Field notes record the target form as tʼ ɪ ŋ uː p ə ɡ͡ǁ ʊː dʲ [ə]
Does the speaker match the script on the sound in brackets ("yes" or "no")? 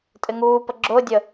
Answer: yes